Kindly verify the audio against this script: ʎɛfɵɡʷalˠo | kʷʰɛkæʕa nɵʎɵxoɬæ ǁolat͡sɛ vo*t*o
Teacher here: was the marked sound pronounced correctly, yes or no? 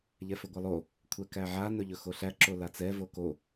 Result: no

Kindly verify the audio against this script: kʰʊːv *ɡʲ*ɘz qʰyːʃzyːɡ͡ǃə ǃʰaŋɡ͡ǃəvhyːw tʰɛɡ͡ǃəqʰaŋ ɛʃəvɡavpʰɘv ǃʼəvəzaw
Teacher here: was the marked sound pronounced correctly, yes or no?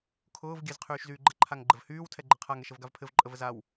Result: yes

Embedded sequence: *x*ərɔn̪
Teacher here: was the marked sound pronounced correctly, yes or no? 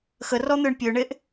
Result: yes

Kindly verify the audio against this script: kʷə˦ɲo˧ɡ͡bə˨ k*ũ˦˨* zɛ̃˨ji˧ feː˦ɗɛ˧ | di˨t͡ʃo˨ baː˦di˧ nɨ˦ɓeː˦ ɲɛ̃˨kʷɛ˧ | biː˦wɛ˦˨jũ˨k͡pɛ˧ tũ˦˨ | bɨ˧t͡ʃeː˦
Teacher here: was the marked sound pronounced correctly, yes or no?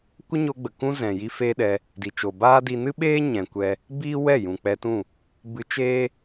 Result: no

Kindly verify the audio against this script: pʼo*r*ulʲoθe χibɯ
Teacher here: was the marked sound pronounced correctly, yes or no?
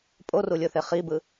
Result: yes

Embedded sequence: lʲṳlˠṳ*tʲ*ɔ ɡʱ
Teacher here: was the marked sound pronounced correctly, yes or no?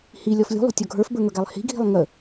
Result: yes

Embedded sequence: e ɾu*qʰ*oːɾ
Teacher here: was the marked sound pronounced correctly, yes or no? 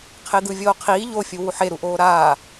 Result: no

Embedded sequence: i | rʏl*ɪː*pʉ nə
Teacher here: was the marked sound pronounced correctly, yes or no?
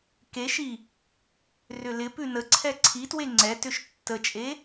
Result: no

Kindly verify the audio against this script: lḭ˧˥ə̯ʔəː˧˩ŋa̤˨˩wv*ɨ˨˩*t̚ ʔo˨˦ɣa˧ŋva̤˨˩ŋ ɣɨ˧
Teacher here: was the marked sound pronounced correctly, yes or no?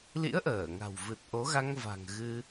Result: yes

